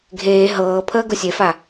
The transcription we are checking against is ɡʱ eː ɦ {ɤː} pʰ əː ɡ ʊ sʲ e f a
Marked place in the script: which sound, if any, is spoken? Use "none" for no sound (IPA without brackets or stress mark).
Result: ɤː